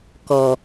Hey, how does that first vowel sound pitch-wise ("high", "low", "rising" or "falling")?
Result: low